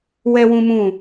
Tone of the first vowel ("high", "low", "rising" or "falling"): high